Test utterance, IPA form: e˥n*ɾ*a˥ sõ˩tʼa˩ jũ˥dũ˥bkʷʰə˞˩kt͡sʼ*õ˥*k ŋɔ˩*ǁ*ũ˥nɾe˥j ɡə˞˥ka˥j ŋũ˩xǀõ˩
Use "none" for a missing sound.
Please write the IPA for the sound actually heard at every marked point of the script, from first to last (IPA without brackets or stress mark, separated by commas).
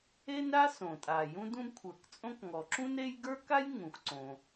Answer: ɾ, õ˥, ǁ